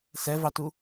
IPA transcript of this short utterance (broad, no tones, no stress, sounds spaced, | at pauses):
s ɛ v ɑ t u